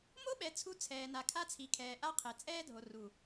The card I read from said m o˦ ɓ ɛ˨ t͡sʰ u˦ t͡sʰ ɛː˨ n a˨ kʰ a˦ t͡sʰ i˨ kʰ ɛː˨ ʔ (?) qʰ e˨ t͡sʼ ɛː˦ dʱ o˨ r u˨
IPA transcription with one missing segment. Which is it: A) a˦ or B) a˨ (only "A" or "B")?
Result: A